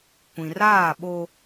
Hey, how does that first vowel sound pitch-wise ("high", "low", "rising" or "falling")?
low